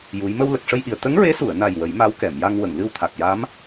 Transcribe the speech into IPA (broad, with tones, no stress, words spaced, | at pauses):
ju˧˥j mə˧wlə˨˩k̚ʂə˧jʔi˨˩ə̯ t̪ə˧˥ŋɹe˧˥su˨˩˨ə̯ na˨˩j wə˨˩˦jma˧˥wkɛ˨˩˨mja˧ŋ wə˨˩˨ŋlɨ˧wt̪ʰa˨˩k̚ja˧˥m